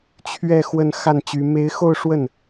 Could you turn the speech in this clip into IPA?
t͡ɕʰɥɛ˥˧ xwə˥˧n xa˥˩nt͡ɕy˧˥ me˧˥ɪ̯xo˥˧ʊ̯ ʂwə˥˩n

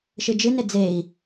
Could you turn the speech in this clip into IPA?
ʃɨd͡ʒɨne d͡zei̯

